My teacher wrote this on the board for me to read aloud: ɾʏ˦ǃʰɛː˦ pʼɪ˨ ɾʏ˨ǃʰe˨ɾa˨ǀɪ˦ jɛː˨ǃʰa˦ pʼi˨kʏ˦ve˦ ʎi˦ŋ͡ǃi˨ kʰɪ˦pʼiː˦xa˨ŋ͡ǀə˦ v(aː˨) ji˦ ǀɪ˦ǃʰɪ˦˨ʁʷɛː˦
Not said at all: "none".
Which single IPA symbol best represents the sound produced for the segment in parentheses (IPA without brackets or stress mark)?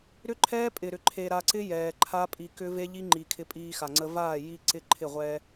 aː˦˨